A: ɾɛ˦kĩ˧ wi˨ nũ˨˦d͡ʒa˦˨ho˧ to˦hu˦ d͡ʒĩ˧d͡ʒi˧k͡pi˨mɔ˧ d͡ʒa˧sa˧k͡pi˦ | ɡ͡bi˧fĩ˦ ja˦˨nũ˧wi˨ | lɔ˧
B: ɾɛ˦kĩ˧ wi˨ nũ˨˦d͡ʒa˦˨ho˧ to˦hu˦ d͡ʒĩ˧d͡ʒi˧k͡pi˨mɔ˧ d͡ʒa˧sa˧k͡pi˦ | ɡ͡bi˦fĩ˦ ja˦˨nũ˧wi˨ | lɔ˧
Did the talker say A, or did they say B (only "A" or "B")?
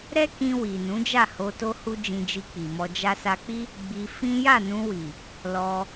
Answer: A